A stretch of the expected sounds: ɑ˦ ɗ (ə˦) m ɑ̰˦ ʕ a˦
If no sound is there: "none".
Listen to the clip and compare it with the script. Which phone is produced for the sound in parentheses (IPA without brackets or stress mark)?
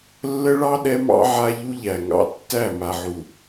ɛ˦